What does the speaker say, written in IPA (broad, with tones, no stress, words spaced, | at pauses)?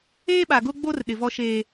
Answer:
eː˦ ɓa˨ɡʊ˦ɡ͡bo˦r ɗɪ˨vɔ˦ʃeː˦